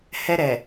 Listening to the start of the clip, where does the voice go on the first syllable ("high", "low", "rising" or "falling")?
high